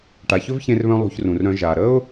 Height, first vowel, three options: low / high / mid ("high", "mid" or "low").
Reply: low